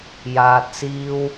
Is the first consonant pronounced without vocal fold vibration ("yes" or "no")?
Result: no